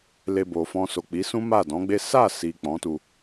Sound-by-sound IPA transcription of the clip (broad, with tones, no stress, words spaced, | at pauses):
le˧bo˨ fɔ̃˧so˨k͡pi˨˦sũ˦ ma˦˨dɔ̃˨˦ɡ͡be˦ sa˦˨ si˨ k͡pɔ̃˨˦tu˧